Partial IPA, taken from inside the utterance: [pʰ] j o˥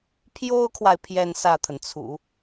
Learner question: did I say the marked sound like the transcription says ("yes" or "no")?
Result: yes